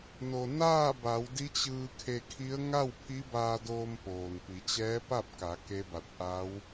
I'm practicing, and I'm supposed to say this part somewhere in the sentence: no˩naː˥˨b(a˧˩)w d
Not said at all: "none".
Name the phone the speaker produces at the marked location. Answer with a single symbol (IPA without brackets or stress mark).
a˩˧